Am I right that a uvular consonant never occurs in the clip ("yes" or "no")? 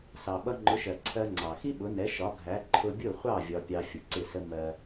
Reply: no